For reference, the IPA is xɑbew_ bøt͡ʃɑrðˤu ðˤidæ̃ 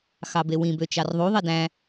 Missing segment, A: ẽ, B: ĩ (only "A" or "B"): B